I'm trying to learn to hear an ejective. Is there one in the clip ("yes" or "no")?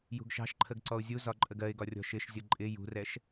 yes